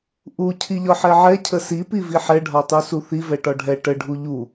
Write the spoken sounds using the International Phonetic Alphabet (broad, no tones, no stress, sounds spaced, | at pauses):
ʔ u cʰ i ʎ ɒ ħ ɛ ʕ ɛ cʰ ə s i p i v i ħ ɛ ɖʱ ɒ tˤ u s u θ i v ɛ ʈ ɒ ɖʱ ɛ ʈ ə ɖʱ u ʎ u